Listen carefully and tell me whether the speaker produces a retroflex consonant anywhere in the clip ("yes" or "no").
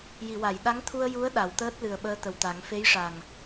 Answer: yes